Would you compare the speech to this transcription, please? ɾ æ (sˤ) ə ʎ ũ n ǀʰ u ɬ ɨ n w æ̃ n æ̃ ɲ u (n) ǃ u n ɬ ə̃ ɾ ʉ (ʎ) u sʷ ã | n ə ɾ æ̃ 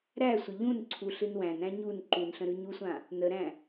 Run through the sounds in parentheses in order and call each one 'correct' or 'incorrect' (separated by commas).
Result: incorrect, correct, incorrect